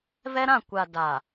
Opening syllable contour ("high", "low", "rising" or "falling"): high